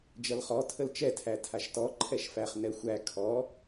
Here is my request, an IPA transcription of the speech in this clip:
d͡ʒʌlχɔ tʰəlt͡ʃɛ tʰætʰaʃtɔ ǃʰɛʃfæχ nɛxʷæ kʰɔ

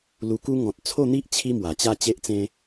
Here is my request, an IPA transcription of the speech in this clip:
lu˧ku˦ ŋɔ̃˨t̚t͡sʰo˥˧n̪i˦ʔ t͡ɕʰi˦mwa˨˩t͡ɕa˥˧ t͡ɕe˦ʔt͡sẽ˦

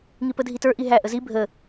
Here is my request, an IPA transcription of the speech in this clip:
ŋipədʱitə˞ ʔiɦæ ʔəzi bʱə

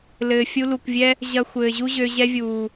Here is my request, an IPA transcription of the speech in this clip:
lɘː˨fʲu˧ lu˨kʷvʲɛ˦ | ʑɐ˧ xʷɘː˨ʑu˦ʑø˧ ʑɛ˧vʲuː˨

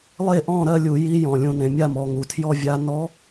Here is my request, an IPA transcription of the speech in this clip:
lˠe˥˧ʔɔ̃˥˧ ɾɜ˥˧lʲu˧˩˧ ji˧˥jɔ̃˩ lʲũ˧˩˧nẽ˩˧mʲa˥˧mɔ˩˧ ŋu˩tʰjɔ˥˧vʲa˧˥ nɔ˧˥

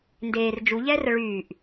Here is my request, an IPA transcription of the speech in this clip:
ndeːr d͡ʒuʎɛːrə ɭyːʔ

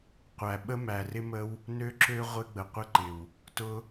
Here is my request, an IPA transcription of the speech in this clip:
qʷæ˨˩ ɓə˦mæ˨˩rɪ˦mə˦w | nø˦ǁø˦ ʁʷɪ˦ɡ͡bə˨˩qʷɪ˦ǃɪ˨˩w | tʊ˦

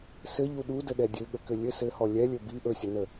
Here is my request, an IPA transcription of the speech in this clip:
sɘʎu ɗudəɗɛ dʲɘɠəkɘ lʲɘ sɘhɔ lʲɛlʲɵ bi ʔɵsʲə nə

